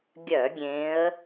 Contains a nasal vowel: yes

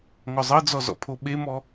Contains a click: no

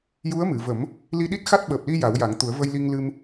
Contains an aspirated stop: no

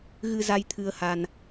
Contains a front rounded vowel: no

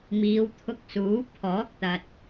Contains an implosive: no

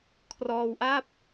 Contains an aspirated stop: yes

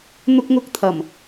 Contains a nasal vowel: no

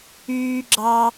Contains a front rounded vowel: yes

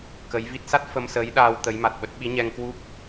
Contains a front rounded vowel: no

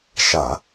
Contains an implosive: no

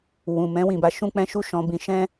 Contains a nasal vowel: yes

